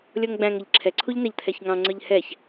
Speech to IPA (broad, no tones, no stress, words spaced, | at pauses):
lʲɔŋɡ͡bæ̃ŋ ʌʎǁʰɛ ǀʰuʎnæʎt̪ʰɛçŋɑ̃ ŋ͡ǀə˞ʎhɛç